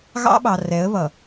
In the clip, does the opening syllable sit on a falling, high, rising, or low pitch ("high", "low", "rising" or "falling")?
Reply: high